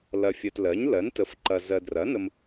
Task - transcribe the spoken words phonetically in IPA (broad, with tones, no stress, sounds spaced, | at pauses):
l ɐ˨ fʲ ɜ˨ t l ɜ˩˥ ɲ l ɜ˩˥ n t ə˩˥ f ǃ ɐ˨ z ɜ˨ d r ɐ˩˥ n ə˨ m